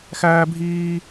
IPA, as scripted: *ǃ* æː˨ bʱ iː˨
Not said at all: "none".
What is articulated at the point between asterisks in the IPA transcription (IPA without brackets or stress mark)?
x